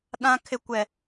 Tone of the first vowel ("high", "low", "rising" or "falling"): high